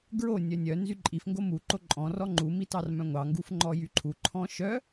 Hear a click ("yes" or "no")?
yes